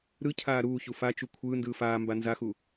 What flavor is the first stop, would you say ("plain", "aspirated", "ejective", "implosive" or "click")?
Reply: aspirated